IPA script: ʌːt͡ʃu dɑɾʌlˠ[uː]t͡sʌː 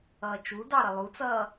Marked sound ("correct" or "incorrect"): incorrect